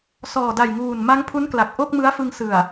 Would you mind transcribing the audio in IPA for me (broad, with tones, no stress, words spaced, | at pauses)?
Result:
sɔː˨˩ da˨˩jŋuː˨˩nma˦˥ŋpʰu˦˥n kla˨˩k̚ʔo˥˩k̚mɯ˦˥a̯fɯ˧ŋ sɯ˨˩a̯